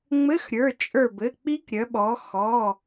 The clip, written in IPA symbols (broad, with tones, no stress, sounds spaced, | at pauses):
ŋ͡m ɘ˧˥˧ x ɾʲ ə˞˩˧˩ t͡ʃʼ ə˞˧˩ b ɘ˩˧˩ k͡p i˦˥ k ɾʲ œ˩˧ ɓ ɔ˩˧ x ɔ˩˧˩